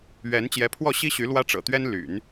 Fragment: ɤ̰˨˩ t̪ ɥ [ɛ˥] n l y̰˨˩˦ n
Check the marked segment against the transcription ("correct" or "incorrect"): correct